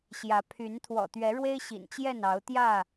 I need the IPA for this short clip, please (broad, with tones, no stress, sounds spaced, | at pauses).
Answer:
ɕ j ä˨˦ pʰ y˨˦ n t̪ʰ w ɔ̰˨˩ t̪ ɥ ɛ˨˦ ɻ w e˦ ɪ̯ ɕ ḭ˨˩ n t͡ɕ j ɛ˥˨ n ɑ˨˦ ʊ̯ t̪ j ä˥˨